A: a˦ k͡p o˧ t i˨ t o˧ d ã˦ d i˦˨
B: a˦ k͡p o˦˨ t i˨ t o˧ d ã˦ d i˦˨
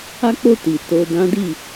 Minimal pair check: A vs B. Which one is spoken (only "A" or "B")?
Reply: B